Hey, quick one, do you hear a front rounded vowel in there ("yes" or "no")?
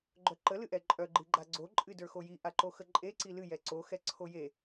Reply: yes